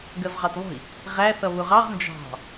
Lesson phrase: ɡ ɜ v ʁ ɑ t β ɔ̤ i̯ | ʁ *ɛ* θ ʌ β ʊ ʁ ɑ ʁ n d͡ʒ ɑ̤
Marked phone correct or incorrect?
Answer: incorrect: æ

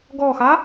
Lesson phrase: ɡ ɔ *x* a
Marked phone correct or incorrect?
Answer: correct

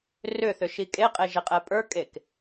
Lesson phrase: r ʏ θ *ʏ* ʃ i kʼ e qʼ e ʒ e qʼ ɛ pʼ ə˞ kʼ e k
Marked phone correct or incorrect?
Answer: correct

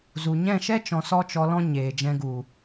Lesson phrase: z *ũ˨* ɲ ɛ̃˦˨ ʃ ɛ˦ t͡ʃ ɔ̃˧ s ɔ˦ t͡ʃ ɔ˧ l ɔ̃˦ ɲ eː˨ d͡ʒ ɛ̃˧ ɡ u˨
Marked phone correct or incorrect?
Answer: incorrect: u˨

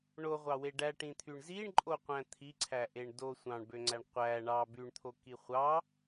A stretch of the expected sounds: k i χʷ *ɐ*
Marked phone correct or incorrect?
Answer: incorrect: ɑ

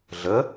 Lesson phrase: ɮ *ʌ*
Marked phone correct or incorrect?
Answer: incorrect: ə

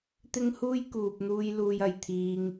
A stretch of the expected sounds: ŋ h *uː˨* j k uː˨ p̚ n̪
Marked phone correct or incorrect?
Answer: incorrect: uː˥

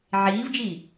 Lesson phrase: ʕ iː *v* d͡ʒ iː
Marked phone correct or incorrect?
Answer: correct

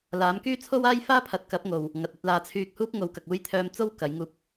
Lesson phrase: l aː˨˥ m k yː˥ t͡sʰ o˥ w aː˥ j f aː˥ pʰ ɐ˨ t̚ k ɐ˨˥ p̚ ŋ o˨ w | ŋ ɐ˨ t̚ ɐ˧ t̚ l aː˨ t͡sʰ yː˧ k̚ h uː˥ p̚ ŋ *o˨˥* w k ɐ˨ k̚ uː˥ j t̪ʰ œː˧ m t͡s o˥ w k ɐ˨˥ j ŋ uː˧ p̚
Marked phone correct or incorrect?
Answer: correct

